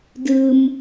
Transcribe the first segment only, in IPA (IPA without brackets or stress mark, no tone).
d